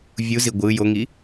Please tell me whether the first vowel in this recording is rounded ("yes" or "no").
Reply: yes